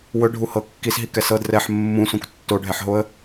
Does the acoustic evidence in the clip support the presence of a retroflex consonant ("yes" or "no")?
yes